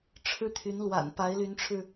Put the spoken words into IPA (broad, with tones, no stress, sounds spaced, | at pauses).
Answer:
ʈ͡ʂʰ ɻ̩˥ t̪ʰ y˧˥ n l w a̰˨˩ n p a˧˥ ɪ̯ l y˧˥ n ʈ͡ʂʰ ɻ̩˧